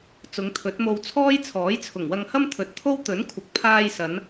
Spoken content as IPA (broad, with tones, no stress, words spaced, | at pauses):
t͡sʊ˨˧ŋt̪ʰɵ˨˥t̚mo˧wt͡sʰɔː˥j t͡sʰɔː˨˥jt͡sʰʊ˨˩ŋwɐ˧ŋhɐ˥m t̪ʰɵ˨t̚t̪ʰo˥w t̪ɵ˨˥nkʷʰɐ˨k̚pʰaː˧jsɐ˨˧n